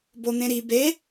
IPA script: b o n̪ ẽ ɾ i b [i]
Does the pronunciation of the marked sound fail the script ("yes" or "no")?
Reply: yes